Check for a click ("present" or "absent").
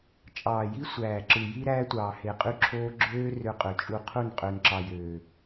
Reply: present